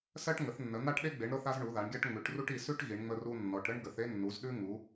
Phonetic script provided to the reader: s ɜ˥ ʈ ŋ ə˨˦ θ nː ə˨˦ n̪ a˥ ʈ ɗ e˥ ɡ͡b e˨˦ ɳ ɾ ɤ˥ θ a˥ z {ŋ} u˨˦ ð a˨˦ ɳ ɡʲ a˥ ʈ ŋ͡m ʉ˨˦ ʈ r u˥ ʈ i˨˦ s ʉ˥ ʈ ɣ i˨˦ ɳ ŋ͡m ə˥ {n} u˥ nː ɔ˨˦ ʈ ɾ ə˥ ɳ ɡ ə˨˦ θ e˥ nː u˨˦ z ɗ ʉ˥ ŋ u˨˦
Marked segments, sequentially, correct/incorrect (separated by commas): incorrect, incorrect